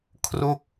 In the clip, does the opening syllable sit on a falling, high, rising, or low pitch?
falling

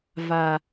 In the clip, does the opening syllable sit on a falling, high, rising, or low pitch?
low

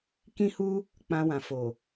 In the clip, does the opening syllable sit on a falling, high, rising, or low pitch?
high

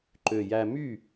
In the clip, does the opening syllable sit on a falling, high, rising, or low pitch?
low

